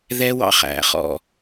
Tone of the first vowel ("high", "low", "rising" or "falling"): high